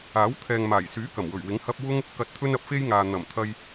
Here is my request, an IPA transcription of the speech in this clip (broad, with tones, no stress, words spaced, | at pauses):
aː˨˥wt̪ʰɛː˨ŋmaː˨˩j syː˨˥ kɐ˨˩mwɵ˨˩ɥwɪ˨˥ŋ hɐ˥p̚ wʊ˥ŋ | kɐ˨t̚ t̪ʰɵ˥nɐ˧p̚fe˥jŋaː˨ n̪ɐ˨˩mt̪ʰɐ˧j